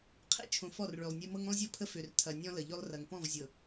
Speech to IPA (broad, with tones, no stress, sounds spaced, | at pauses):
qʰ ḛ˦ t͡ʃʰ õ˨ f ɔ˦˨ r ɭ ø˨ lˠ nʲ e˦ m ɤ˦ ŋ õ˦ lˠ zʲ ɔ˦ pʰ ə˦ f ø˨ r tʰ ɐ˨ nʲ ɔ̃˦ l ə˨ ʎ ø˦ lˠ r ɐ˨ ŋ p ɔ̃˦˨ v zʲ ɤ˨